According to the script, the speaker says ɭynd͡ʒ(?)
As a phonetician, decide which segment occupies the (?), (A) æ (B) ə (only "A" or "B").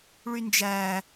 A